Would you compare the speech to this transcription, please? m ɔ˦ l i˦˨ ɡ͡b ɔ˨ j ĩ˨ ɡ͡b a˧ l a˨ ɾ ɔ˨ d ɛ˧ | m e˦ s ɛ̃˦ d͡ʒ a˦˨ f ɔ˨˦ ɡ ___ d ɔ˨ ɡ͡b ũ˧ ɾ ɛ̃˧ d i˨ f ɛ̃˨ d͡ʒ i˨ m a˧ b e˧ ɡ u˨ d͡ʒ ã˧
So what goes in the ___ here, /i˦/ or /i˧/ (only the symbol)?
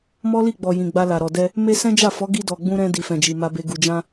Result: i˧